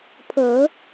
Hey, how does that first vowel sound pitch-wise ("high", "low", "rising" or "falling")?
rising